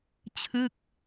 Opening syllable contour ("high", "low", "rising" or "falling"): falling